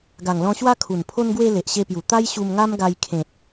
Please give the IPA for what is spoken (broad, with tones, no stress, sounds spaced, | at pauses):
ɡ a˨˩ ŋ l ɔ̃˧ ɕ w a˦ kʰ u˨˩ n pʰ o˧ n ɡ w e˧ l e˨ ʔ ɕ e˧ p j u˨˩ t̪ a˦ j ɕ u˧ m ŋ a˦ m ɡ a˧ j kʰ ẽ˨ t̚